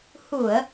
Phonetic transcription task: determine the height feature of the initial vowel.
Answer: high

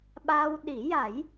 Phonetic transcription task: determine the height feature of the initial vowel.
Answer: low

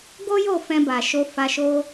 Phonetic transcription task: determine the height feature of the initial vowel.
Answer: mid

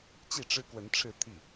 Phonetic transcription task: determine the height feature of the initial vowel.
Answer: high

